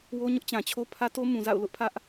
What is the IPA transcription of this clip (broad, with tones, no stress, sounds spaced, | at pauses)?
w o˦ ɲ ʊ˦ ʔ t͡ɕ ã˨ t͡ɕʰ o˦ pʰ ä˦ t o˦ m ũ˨ z a̰˦˨ ʊ̯ l ʊ˦ ʔ pʰ ä˦ ʔ